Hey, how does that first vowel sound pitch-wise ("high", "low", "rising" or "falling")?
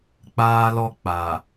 high